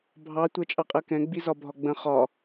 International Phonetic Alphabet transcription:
bʱɑ tʷɜt͡ʃʼɑqʼɜkɛ̃ ɡ͡bizɒbʱɒɡ͡bə̃ χɒ

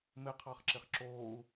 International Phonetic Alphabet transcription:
mɪqʰɑχǁɪχ ǁoːu̯

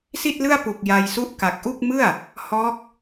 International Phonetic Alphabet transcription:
si˥˩t̚lɯ˥˩a̯pu˨˩k̚ ja˧jsu˥˩ʔ ka˨˩k̚ʔu˥˩k̚mɯ˥˩a̯ | hɔː˦˥k̚

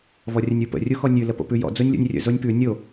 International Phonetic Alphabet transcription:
vɔrʲənʲupə̰ rʲuxɔnʲʉ ləpo̰pʉjɔ̰ d͡zonʲlʲɔ̰nʲrʲə̰ zonʲpʉ nʲo

